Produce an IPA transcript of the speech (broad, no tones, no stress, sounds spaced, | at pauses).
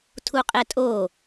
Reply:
tʰ u qʼ ɛ tʼ o